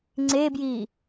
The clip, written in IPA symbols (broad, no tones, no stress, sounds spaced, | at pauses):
ŋ͡ǀ e b j i